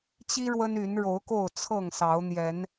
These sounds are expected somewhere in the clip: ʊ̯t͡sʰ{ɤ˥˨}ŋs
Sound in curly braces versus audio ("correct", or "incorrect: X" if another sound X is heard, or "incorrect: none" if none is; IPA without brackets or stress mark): correct